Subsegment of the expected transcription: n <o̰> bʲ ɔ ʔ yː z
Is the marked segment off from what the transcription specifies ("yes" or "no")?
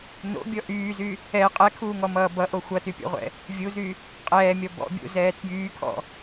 no